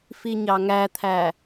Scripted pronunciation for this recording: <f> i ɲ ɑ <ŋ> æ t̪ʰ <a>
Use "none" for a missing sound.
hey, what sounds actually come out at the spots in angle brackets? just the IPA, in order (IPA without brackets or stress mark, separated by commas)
f, ŋ, æ